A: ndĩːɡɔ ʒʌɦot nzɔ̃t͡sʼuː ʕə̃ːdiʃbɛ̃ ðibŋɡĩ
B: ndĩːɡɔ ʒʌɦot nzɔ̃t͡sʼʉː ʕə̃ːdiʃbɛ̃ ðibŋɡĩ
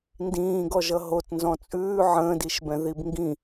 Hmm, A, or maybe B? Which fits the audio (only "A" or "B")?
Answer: B